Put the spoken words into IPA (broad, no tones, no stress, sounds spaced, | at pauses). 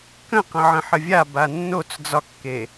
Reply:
k ə̃ q ə̃ ʕ ə̃ ħ ə vʲ a b a nː o t͡s d͡z ɒ kː e